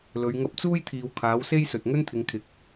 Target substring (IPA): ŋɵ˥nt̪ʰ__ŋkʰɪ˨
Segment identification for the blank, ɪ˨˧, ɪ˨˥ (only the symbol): ɪ˨˧